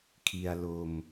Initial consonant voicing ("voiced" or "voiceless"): voiceless